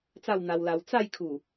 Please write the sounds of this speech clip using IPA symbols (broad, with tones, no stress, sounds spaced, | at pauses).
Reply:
t͡s a˥˧ w n̪ a˧ w l a˧ w t͡s a˥˧ j kʰ u˨˩